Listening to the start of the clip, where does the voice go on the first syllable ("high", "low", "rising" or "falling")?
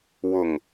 low